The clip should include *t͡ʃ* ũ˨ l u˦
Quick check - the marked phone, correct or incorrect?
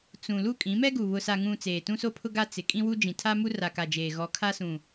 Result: incorrect